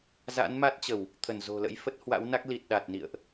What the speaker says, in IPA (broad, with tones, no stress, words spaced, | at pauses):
za̰˧˥nma˦˥t̚t͡ɕə˧˩˨w | t̪ʰə˧˩nzo̤˨˩lə̰˧˥jfə˦˥t̚ hwa̰˧˥wna˦˥k̚ li˨˩t̚ɗa˨˩t̚nḭ˧˨ə̯ʔ